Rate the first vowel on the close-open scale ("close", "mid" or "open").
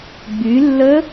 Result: close